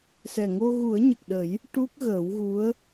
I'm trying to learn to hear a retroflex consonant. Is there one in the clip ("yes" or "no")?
yes